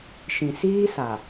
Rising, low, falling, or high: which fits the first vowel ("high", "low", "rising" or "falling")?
low